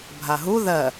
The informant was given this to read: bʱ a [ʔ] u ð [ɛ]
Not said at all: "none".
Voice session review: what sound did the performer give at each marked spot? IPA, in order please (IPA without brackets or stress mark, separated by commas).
ɦ, ɜ